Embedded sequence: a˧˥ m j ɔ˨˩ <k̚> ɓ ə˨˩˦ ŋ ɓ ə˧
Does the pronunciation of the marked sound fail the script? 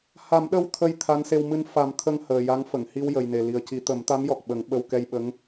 no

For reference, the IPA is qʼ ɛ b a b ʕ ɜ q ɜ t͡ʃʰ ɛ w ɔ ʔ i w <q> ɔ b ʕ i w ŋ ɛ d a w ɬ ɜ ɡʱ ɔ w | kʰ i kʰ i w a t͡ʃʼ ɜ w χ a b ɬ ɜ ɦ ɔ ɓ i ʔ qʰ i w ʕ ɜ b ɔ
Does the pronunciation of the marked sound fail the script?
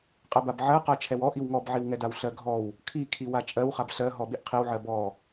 yes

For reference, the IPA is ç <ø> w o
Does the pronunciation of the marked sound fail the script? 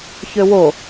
no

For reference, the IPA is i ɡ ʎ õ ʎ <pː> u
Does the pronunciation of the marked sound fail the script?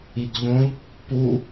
no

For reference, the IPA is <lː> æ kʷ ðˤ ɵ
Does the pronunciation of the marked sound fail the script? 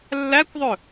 no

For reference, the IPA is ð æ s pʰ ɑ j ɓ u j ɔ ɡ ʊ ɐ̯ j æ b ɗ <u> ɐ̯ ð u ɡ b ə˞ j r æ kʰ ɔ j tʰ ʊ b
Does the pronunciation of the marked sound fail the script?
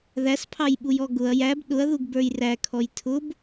yes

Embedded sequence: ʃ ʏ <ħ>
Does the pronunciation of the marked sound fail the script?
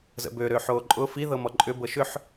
no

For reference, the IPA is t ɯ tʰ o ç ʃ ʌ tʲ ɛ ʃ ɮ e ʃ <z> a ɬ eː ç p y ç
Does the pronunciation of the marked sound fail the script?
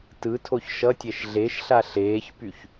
yes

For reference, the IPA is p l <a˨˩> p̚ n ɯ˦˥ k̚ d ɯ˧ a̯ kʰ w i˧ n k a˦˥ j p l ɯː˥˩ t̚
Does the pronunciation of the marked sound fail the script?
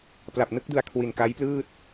no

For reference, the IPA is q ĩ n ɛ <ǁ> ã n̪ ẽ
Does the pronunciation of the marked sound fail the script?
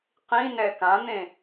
yes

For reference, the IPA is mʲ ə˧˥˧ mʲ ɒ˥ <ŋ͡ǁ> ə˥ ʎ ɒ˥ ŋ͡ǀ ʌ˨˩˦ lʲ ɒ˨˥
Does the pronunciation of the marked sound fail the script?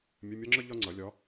no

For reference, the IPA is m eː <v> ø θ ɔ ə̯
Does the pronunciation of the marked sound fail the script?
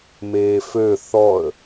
yes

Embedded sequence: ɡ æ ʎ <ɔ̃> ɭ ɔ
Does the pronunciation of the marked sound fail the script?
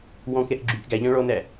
yes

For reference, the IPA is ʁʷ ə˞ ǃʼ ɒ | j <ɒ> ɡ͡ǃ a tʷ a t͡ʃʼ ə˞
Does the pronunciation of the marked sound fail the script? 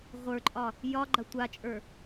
no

